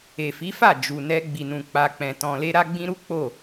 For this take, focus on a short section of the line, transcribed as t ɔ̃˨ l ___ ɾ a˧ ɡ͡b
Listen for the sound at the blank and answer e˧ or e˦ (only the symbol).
e˧